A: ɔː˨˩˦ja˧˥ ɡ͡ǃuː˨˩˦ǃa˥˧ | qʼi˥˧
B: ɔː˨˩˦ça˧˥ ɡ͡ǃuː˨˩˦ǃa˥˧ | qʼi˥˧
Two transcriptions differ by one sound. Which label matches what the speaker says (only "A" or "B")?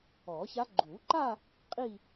B